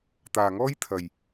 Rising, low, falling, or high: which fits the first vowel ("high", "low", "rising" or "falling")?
low